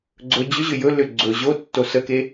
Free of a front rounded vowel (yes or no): no